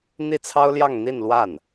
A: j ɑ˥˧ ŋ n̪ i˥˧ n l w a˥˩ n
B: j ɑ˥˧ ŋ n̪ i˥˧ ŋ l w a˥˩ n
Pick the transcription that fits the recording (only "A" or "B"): A